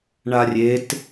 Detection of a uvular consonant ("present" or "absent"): absent